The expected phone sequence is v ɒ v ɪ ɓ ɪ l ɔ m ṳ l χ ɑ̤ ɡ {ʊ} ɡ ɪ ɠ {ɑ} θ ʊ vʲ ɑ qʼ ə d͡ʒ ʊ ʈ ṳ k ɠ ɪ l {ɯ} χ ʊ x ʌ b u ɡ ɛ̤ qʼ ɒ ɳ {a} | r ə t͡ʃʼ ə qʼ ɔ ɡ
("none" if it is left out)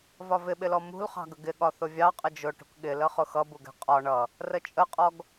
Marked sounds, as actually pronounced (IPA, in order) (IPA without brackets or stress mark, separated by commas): ə, ɒ, ə, ʌ